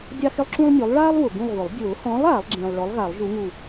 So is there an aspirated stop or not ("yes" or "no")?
no